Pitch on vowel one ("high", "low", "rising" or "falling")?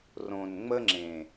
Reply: low